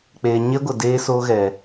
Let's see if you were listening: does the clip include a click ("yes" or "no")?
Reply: no